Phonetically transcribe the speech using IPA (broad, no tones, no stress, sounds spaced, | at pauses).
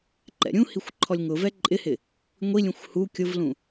ǃ ɛ̰ ɾʲ ũ h i xʷ ǃʰ ɔ lʲ ŋ ʊ v ɛ ǃʼ ɪ h ɪ | ŋʷ i lʲ ũ xʷ h u kʲ ʊ v l ũ